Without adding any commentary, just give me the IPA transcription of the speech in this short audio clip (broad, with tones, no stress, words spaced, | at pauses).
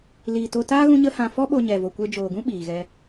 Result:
liː˨to˧taː˦ ɣũ˦ɲə˦ hã˧ fɔ˦ɓo˧ ɲɛ˨vo˨kʷe˧ d͡ʒoː˨ɡũ˦ ɓiː˨ɣɛ˧